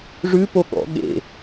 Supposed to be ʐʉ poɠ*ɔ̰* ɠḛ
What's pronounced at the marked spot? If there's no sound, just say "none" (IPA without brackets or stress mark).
ɔ̰